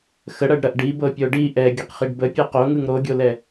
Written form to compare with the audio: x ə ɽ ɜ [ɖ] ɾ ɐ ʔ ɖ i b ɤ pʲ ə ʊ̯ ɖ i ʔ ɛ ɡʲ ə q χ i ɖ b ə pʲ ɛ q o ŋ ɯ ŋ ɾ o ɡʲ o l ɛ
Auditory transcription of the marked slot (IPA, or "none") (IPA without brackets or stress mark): ɖ